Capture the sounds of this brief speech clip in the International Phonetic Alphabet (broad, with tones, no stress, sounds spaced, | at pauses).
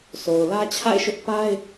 sʰ o˨ ʊ̯ l ä˦ t͡ɕʰ a̰˦˨ ɪ̯ ʃ ʊ˦ ʔ p a˦ ɪ̯